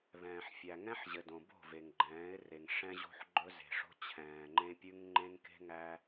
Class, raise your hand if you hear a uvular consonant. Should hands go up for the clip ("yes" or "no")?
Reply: no